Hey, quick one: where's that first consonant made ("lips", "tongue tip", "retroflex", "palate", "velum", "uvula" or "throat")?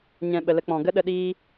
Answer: palate